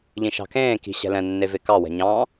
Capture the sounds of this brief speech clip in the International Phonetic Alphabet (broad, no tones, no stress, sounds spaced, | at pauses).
ʎ ĩ ʃ ɑ̤ k ẽː k i̤ ɕ ɛ̤ l ɛ̃ nː e v e k ɑ w ɛ̤ ɲ ɑ̃